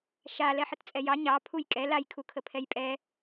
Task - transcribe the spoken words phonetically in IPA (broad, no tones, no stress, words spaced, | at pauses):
ʃa lɛħətt͡sʼɛjɑ ɲɑ pʰujkʼɛ laj kʰukʰəpʰɛjpʼɛ